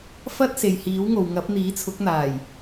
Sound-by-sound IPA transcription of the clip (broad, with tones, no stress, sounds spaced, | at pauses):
f ɐ˥ t̚ s e˨ j h iː˨˥ w ŋ o˨ w ŋ ɐ˨˥ p̚ n̪ iː˨˥ t͡sʰ ʊ˨˥ k̚ n̪ aː˨˩ j